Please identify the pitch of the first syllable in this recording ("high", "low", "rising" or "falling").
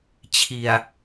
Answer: low